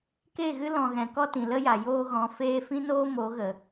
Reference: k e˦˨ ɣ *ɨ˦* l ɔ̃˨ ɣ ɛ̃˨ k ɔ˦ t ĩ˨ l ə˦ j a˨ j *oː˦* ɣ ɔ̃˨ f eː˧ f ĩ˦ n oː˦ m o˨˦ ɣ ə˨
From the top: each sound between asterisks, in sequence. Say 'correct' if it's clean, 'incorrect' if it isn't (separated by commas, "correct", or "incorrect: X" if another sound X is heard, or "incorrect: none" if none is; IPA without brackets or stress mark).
correct, incorrect: oː˧